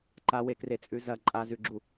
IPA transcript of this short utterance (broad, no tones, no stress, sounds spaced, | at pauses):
ǃ a w e k r e t͡sʼ ʉ z ɐ ǃʼ a z ʉ ɡ͡ǁ u